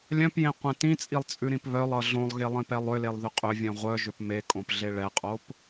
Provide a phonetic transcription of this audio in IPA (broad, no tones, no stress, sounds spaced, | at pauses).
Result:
lʲ œ̃ p j ẽ qʷ ẽ t ĩ t͡sʼ i lˠ t͡sʼ ʉ ɾ ĩ p β œ lˠ ʌ ɮ õ lˠ ɣ e lˠ ĩ p ɛ lˠ ʏ l e lˠ ð ʏ qʼ ʏ vʲ œ̃ ʁʷ œ ʒ ʏ p m e kʼ õ p ɮ e ɭ ɛ qʼ o p